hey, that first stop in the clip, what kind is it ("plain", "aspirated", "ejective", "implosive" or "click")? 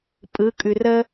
ejective